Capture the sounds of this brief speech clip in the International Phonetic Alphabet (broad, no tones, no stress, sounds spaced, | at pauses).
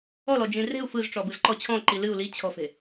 ɔ l ɔ d͡ʒ ĩ r e̤ u̯ f ɯ z ʈ͡ʂ ɔ b ɯ z ǃ ɔ t͡ɕʰ ɔ̃ ǃ i l ɨ u̯ l i t͡ɕʰ ɔ̤ f e̤